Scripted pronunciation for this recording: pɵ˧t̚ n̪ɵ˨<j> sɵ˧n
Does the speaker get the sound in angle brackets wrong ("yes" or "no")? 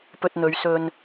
yes